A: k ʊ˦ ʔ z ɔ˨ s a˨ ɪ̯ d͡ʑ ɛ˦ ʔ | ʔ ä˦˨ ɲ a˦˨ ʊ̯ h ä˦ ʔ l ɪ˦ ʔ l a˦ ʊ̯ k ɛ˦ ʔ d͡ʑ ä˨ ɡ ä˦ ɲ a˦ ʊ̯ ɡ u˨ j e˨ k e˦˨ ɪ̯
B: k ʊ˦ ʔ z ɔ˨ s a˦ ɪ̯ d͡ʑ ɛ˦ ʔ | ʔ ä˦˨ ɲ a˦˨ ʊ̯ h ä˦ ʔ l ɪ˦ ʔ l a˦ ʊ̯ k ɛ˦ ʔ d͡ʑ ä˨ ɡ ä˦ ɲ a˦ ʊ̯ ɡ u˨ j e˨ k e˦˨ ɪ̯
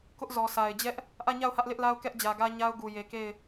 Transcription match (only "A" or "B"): A